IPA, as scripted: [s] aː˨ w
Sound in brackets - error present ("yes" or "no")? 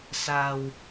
no